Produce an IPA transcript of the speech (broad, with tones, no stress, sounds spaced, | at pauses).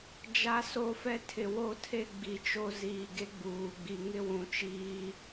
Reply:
d͡ʒ a˦ s o˦ f ɛ˦ tʰ ɪ˨ w o˦ tʰ e˦ ɡ͡b i˨ t͡ʃ o˦ z iː˨ ɡ e˦ ɡ͡b uː˨ ɡ͡b i˨ ŋ ɪ˦ w ũ˨ t͡ʃ iː˦